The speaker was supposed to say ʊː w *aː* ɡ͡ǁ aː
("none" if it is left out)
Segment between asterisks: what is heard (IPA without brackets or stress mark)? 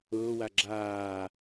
a